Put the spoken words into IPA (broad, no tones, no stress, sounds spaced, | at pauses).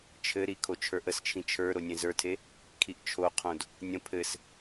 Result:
t͡ʃʰ ɘ ɾ i kʰ o t͡ʃʰ ə˞ ʔ ə s t͡ʃʰ ĩ t͡ʃʰ ə˞ ɾ o nʲ ẽ z ə˞ tʰ e | kʰ i ʔ t͡ʃʰ o qʰ õ d | nʲ ə̃ pʰ ɘ s